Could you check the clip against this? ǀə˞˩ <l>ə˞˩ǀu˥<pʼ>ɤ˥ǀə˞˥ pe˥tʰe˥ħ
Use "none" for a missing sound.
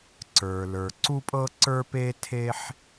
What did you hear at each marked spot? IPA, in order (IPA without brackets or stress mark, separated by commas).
l, pʼ